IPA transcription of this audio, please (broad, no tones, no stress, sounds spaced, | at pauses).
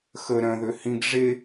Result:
x ə ɾ œ̃ ð ø h ĩ ɡ ʐ e